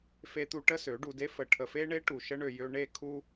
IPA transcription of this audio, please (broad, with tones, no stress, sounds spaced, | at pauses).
f e˧ t̪ u˧ ʈ ə˦ s ø˨˦ ɖ u˧ d e˦ f ə˨ ʈʰ ə˨ f e˦ ɳ e˦ ʈ u˨ ʃ ə˦ ɳ ø˨ j ø˧ ɳ e˦˨ kʰ u˧